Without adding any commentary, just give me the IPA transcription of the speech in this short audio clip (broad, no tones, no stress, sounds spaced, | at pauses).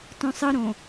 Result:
t õ sˤ ɯ ɾ õ